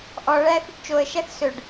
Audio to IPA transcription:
ʔ ɔ ɭ æ θ y ɖ t͡ʃ o ə̯ ʃ æ θ s ɵ ɖ

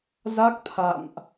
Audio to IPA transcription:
z a˦˥ k̚ t̪ʰ a̰˧˨ m ʔ

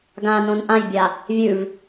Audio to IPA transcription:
ɡ ã n õ n ʔ ã j bʲ a | vʲ ʉ v

